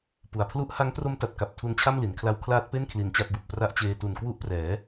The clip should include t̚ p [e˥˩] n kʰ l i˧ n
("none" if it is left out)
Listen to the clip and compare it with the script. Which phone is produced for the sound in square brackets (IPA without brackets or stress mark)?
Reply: e˥˩